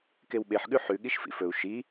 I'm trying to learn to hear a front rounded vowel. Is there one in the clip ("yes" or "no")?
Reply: no